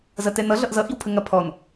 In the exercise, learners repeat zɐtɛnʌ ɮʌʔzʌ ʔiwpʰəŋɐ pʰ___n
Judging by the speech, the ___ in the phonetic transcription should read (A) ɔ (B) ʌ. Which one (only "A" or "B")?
A